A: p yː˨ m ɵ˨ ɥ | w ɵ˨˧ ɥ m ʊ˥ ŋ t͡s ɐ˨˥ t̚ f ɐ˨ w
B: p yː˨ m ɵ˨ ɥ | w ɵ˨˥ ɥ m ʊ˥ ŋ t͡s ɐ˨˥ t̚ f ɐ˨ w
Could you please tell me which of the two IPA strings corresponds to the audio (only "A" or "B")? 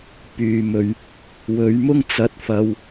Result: A